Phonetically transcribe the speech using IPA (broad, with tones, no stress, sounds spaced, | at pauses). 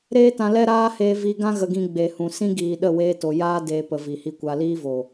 ɾ eː˦ t ã˧ l ɛ˦ ɾ aː˦ h eː˧ v i˧ ɡ ã˦ ɣ ə˧ ɡ ĩ˧ ɡ͡b e˨ h ũ˨ s ĩ˦ ɡ iː˨ ɗ ə˦˨ w eː˧ t o˨ j aː˦ d eː˧ p ə˨ v i˨ h i˧ kʷ a˧ l iː˦ v o˨